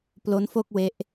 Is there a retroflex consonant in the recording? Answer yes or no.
no